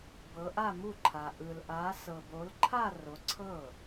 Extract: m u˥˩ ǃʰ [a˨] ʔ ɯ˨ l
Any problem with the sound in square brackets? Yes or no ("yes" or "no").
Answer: no